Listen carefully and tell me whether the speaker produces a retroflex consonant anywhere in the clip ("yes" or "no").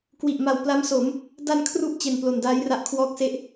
no